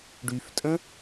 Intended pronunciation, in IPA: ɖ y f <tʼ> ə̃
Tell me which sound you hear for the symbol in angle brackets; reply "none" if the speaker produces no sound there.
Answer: tʼ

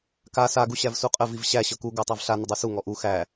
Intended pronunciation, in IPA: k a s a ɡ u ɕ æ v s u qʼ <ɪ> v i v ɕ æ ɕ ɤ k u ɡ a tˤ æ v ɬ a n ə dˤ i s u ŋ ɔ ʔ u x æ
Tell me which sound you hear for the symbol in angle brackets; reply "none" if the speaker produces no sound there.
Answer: ə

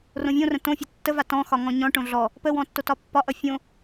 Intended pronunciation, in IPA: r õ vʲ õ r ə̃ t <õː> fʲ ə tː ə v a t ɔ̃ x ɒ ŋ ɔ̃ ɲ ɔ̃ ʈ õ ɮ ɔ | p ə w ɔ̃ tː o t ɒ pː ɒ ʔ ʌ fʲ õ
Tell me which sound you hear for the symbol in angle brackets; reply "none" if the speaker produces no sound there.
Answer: õ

